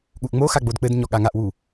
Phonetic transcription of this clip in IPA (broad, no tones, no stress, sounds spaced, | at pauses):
ɠ u ʔ ŋ͡m o x a ɡ͡b o d k͡p ɘ d ɲ ɔ ɠ a ŋ a ʔ w u